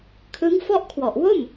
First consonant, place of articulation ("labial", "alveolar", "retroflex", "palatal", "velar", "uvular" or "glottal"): velar